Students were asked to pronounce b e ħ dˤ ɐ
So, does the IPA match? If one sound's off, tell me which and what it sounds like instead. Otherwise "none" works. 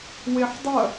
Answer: b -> w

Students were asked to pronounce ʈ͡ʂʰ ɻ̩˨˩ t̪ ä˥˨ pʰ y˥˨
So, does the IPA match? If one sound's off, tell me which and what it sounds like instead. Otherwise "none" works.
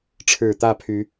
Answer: y˥˨ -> y˨˦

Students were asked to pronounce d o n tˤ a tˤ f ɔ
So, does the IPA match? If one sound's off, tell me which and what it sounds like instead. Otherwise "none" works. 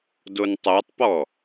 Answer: f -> p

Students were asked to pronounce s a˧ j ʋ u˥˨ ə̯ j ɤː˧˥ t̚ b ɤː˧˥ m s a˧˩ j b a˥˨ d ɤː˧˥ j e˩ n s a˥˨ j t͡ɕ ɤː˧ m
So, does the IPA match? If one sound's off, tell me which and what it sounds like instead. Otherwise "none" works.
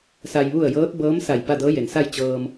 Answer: none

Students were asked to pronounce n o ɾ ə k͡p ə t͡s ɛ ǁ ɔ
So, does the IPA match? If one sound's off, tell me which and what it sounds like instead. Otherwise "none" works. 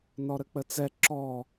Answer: o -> ɔ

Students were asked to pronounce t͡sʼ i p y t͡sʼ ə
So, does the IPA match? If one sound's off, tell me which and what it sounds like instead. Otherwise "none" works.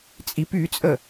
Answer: none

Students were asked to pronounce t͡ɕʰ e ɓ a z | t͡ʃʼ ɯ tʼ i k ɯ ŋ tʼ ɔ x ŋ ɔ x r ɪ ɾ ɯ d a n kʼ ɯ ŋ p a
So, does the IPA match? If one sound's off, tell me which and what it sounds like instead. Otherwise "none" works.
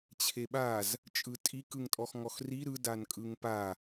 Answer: ɪ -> i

